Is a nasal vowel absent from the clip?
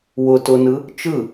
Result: yes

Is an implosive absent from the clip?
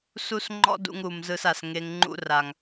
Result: yes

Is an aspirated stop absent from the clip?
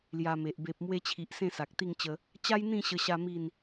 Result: no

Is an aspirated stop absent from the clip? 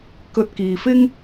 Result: yes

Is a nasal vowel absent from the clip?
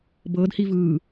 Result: yes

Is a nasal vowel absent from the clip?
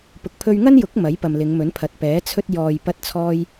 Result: yes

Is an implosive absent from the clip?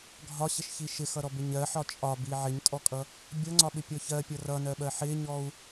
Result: no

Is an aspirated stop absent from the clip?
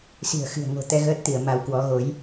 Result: yes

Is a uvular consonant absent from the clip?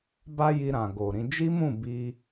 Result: yes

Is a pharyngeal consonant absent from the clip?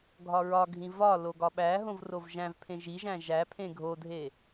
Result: yes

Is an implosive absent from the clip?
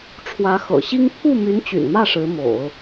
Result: yes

